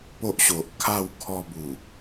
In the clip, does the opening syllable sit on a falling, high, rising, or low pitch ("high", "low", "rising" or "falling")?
high